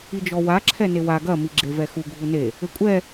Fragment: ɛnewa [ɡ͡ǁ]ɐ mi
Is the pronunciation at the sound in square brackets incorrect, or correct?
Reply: incorrect